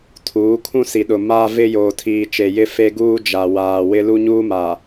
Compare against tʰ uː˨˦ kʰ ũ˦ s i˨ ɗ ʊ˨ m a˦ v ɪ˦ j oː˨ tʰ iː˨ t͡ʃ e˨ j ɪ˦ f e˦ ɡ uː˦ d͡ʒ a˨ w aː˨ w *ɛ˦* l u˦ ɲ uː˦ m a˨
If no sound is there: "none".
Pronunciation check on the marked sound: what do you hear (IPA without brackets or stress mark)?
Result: ɪ˦